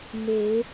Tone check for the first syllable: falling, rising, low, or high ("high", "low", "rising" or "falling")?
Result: rising